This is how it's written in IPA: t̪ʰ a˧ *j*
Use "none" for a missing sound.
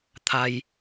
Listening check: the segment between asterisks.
j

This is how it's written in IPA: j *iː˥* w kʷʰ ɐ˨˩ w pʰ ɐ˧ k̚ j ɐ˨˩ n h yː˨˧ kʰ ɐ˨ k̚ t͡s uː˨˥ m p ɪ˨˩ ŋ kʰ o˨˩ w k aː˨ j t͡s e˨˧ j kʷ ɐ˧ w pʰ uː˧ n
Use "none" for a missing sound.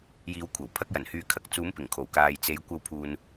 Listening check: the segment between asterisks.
iː˨˧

